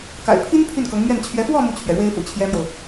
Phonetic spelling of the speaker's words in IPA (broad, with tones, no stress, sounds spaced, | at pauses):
k a̰˨˩ ɪ̯ pʰ i˥ n pʰ y˥˩ n k ɤ˧˥ ŋ m ɥ ɛ˥˩ n t͡ɕʰ ɥ ɛ˧˥ f w ɔ˥˧ m u˥˩ t͡ɕʰ ɥ ɛ˩ ɻ w e˥ ɪ̯ f ṵ˨˩ t͡ɕʰ j ɛ˥ m j o˨ ʊ̯